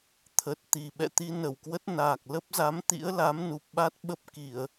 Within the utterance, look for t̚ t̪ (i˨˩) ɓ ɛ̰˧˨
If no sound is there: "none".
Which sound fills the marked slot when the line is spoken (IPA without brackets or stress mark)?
i˨˩